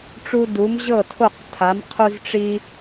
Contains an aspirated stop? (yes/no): yes